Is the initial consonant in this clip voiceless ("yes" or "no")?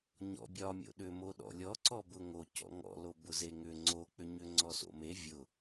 no